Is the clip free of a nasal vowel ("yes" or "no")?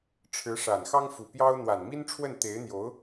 yes